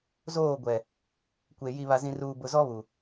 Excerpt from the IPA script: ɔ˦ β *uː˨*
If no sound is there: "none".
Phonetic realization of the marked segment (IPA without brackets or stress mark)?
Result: u˨